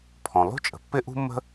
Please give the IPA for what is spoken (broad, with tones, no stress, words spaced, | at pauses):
pʰɔ̃˩lˠṳ˥t͡ʃʼə̤˩ pːɪ˥ʔṳ˥mːə̤˥